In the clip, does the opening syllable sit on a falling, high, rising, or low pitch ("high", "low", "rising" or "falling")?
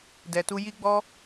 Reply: low